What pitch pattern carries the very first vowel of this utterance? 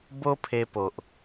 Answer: high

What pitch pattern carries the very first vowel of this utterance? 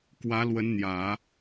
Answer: rising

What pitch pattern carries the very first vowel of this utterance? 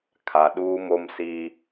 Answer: low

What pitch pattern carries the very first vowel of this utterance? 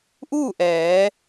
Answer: falling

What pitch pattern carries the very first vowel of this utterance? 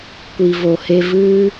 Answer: low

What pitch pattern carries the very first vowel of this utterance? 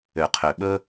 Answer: low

